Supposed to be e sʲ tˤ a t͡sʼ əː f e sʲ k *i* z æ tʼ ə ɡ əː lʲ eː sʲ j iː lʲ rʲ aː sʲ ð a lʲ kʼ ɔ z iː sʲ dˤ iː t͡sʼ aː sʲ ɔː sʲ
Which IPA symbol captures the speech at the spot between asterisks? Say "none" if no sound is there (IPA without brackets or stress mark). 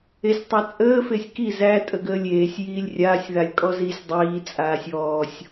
i